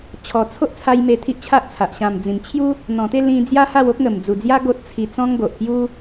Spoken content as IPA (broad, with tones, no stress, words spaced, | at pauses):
t͡ɕʰɔ˨˩ t͡sʰo˦ʔt͡sʰa˧j me˧ t̪ʰi˦ʔt͡ɕʰa˦ʔt͡sʰa˨ʔ ɕã˨˩m d͡zĩ˨˩mt͡ɕʰju˦ | n̪ɔ̃˨˩t̪e˥˧ lĩ˧ d͡zja˦ha˥˧w o˦k̚ŋə˨˩md͡zu˨˩d͡zja˦ ɡo˦t̚t͡sʰi˧ t͡sɔ̃˦ŋɡo˨ʔpju˦